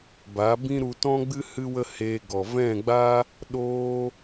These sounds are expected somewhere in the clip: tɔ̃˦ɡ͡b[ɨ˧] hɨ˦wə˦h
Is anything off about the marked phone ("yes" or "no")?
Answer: yes